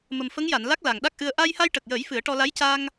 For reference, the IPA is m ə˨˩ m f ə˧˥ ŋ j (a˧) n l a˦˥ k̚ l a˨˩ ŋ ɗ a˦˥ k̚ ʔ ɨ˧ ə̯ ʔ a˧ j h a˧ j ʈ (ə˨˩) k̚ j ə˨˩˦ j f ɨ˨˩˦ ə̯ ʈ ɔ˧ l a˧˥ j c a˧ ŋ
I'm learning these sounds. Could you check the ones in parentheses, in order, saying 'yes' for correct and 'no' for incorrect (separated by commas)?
no, yes